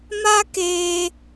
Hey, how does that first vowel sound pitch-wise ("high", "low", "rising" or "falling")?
high